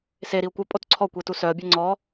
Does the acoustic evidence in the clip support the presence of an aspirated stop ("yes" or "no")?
yes